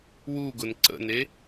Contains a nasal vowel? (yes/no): no